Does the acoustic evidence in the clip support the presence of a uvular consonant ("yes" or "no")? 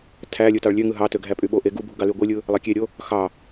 no